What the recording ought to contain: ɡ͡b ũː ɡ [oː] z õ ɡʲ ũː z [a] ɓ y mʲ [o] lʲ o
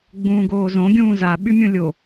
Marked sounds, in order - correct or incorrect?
correct, correct, incorrect: õ

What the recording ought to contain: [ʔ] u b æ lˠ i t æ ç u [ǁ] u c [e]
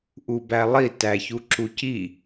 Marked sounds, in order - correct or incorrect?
correct, correct, incorrect: i

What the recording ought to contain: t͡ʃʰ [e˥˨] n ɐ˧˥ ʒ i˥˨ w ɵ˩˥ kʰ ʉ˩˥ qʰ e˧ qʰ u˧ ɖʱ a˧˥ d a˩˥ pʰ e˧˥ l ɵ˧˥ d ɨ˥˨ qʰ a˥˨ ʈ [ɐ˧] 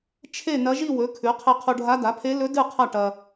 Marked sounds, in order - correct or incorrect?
correct, correct

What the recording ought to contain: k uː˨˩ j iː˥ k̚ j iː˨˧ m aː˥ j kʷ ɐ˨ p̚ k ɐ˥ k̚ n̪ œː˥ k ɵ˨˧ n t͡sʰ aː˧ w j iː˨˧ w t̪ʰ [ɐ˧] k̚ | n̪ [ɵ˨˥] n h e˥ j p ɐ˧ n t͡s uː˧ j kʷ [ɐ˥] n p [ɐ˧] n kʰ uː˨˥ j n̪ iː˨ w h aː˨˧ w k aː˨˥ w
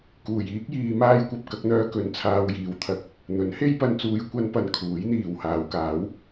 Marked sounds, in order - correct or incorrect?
correct, correct, correct, correct

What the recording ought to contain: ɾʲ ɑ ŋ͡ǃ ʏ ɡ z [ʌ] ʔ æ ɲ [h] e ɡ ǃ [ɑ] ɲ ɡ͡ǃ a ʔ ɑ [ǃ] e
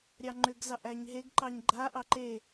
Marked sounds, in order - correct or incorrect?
incorrect: ɑ, incorrect: ɦ, correct, correct

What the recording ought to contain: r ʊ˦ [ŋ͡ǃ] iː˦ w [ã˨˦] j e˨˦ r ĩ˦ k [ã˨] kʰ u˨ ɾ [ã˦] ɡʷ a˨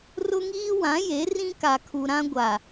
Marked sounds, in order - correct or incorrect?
incorrect: ŋ, correct, incorrect: a˨, correct

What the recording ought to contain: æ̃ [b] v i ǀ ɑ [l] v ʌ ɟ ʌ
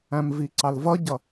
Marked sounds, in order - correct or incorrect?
incorrect: m, correct

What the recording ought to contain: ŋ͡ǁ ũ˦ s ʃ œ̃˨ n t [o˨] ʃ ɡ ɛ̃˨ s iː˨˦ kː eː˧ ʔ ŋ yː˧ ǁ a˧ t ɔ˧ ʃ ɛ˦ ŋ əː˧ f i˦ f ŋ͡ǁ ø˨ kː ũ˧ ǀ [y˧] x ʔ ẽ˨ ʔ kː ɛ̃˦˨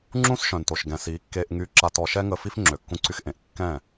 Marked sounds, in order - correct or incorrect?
correct, correct

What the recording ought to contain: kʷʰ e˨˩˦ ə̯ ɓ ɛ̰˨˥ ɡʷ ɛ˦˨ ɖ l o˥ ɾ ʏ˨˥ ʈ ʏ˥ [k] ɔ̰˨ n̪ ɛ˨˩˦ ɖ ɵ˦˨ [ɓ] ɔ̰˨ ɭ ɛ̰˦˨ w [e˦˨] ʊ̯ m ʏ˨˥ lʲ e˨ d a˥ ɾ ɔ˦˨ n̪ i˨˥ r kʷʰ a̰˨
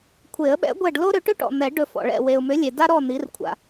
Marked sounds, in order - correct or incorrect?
incorrect: ʈ, incorrect: f, incorrect: e˨

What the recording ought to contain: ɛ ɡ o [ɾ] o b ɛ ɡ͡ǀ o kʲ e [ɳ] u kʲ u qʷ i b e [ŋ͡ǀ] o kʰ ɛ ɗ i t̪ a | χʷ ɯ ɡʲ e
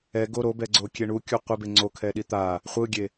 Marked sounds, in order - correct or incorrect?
correct, correct, correct

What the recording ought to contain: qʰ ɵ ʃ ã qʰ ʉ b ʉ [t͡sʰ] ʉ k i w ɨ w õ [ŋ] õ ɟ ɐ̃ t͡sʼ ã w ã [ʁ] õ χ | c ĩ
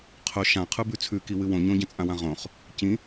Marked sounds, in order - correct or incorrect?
correct, incorrect: ɲ, correct

